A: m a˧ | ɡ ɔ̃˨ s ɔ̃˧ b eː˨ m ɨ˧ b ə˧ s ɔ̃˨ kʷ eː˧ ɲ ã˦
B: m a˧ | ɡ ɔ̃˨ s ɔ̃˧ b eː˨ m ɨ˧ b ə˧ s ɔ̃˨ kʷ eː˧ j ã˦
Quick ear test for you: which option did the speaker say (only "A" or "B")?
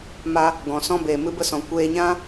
A